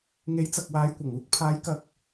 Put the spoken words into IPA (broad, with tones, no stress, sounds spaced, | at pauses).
ŋ e˨˥ j t͡s ɐ˨ k̚ w aː˨˧ j kʷ ɐ˨˩ ŋ uː˧ k̚ pʰ aː˨˧ j k ɐ˨ k̚